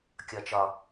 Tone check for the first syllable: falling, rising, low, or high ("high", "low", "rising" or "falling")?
low